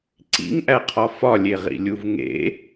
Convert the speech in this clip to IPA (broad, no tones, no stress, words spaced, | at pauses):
ǀḭŋʔæqʰɒ fɒlʲeʁḭlʲuv ŋḛ